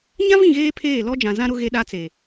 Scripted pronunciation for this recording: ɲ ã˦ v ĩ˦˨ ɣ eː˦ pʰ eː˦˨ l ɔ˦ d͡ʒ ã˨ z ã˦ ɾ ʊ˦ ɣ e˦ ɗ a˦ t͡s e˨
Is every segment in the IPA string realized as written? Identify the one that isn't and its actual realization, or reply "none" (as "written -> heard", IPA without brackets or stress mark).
none